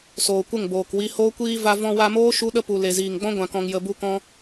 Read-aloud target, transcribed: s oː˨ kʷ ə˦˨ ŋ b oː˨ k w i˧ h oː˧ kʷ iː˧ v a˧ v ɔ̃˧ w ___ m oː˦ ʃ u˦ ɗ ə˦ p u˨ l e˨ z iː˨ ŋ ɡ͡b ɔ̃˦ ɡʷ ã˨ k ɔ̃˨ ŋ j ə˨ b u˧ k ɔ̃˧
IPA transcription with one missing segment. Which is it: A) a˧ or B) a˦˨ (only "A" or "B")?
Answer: A